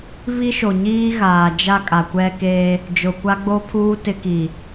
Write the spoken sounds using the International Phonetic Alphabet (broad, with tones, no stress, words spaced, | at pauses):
βi˦ʃo˨ɲiː˦ɣaː˨ d͡ʒa˦kʼa˨kʷɛ˦ ke˦ | d͡ʒʊ˨kʷa˦ɡ͡bo˦pʰuː˦ tɪ˦ki˨